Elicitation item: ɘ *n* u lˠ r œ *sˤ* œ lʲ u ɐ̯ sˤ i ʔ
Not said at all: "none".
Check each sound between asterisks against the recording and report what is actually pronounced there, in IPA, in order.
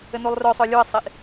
n, sˤ

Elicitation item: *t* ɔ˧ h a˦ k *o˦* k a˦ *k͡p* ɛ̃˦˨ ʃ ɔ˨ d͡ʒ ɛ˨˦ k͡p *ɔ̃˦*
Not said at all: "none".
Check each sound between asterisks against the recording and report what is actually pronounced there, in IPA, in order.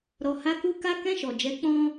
ɾ, u˦, k, ɔ̃˦

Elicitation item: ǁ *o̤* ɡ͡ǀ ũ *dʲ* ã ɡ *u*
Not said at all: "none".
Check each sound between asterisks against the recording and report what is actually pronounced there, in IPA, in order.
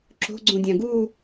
o̤, dʲ, u

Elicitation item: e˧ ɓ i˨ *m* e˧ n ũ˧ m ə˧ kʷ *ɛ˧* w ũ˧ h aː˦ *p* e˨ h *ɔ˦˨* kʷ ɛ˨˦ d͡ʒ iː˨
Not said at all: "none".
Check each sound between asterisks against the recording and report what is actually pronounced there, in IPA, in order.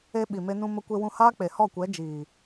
m, e˧, k͡p, ɔ˦˨

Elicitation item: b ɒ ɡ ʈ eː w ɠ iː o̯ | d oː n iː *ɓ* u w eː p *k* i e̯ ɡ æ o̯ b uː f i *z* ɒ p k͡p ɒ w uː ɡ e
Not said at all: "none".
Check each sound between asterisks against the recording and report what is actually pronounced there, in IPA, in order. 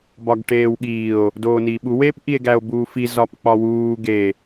ɓ, ʔ, z

